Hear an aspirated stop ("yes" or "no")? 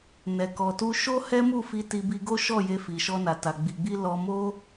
no